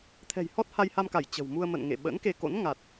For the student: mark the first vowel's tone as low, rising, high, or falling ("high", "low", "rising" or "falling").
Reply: low